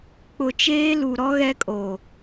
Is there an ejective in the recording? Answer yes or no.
yes